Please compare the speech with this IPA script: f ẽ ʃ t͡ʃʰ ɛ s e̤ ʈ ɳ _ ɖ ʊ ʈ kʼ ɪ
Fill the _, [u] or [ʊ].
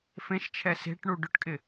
u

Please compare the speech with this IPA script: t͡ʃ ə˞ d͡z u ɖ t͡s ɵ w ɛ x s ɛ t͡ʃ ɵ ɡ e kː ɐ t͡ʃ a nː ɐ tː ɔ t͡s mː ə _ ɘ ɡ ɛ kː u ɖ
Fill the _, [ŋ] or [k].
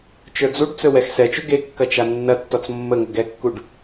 ŋ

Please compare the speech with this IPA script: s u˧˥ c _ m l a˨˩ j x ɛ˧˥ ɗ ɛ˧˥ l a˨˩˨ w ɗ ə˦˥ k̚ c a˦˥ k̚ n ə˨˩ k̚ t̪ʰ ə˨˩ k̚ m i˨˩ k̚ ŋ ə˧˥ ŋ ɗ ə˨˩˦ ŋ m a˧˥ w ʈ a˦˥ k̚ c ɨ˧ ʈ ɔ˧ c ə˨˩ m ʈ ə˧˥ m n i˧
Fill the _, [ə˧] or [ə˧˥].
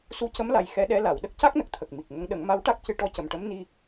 ə˧˥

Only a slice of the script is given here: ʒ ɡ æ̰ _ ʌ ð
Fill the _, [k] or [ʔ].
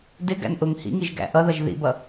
ʔ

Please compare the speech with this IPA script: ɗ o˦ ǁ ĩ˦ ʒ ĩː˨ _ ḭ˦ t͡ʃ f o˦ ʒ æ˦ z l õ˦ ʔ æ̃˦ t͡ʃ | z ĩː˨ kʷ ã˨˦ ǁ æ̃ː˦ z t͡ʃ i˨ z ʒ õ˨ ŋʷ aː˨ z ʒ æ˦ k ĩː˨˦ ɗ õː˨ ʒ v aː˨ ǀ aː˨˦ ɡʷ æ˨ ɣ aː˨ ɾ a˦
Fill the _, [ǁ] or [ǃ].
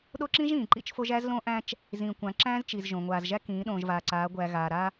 ǃ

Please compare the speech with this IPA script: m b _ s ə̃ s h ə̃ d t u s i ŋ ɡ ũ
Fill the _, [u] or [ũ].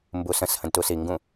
u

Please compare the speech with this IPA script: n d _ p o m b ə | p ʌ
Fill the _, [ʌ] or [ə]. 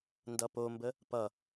ʌ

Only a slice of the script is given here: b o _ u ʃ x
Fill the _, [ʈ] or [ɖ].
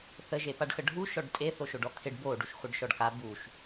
ɖ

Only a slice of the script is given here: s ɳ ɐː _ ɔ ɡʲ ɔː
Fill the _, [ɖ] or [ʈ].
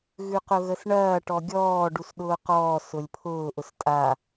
ʈ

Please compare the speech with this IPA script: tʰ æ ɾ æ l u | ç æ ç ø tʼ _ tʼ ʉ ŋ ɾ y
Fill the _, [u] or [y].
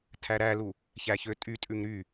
y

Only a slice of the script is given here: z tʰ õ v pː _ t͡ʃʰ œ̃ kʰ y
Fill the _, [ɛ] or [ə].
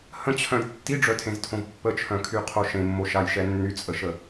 ə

